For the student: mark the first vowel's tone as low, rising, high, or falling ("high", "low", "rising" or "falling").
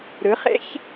rising